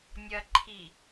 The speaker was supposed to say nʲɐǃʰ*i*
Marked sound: correct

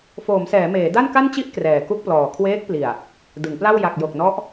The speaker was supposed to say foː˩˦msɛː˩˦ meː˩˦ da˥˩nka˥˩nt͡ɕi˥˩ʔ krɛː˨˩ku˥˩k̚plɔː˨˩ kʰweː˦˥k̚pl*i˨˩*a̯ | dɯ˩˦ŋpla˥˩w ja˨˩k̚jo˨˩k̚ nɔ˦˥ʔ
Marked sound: correct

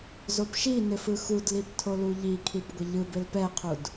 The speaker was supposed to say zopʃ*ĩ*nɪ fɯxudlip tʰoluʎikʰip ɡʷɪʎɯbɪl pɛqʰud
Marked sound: incorrect: i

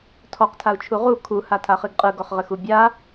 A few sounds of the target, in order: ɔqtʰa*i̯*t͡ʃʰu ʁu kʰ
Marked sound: incorrect: u̯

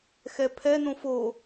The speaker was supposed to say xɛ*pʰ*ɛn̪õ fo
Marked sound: correct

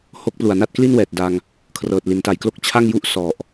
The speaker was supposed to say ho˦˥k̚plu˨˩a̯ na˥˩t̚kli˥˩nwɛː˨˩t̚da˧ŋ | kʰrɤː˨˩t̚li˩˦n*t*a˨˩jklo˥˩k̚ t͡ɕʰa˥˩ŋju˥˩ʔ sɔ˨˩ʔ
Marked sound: correct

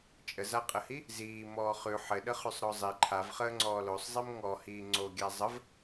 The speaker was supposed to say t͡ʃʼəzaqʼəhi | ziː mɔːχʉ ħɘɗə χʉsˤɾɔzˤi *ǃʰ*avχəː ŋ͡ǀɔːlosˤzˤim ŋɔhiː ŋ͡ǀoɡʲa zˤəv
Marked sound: correct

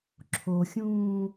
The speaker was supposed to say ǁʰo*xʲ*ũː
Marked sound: correct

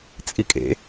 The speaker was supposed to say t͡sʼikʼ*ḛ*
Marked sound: correct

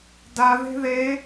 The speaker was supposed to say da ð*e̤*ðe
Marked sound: correct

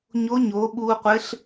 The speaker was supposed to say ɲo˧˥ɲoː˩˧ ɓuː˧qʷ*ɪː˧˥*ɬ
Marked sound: incorrect: ɪ˧˥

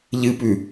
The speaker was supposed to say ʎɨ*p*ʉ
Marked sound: correct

